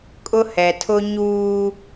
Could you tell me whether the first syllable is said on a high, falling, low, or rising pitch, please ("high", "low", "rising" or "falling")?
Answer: high